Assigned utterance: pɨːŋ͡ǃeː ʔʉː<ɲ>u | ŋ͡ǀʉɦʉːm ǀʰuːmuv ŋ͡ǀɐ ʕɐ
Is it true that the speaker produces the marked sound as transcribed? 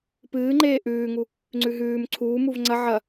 no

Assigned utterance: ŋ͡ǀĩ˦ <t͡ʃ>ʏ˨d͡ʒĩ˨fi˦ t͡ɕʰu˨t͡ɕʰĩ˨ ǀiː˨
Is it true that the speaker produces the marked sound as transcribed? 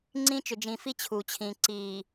yes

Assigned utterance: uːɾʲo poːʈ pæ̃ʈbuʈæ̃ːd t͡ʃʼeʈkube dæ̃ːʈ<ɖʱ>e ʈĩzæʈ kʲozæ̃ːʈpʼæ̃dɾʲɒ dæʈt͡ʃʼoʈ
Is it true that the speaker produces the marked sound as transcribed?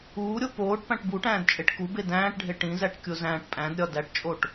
yes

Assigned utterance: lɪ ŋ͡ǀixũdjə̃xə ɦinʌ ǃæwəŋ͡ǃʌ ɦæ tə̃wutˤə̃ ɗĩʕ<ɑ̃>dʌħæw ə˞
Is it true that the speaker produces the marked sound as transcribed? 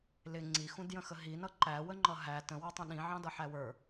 yes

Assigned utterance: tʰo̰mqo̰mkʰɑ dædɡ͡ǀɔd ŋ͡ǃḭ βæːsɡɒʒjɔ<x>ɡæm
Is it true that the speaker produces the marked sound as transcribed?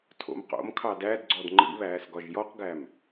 no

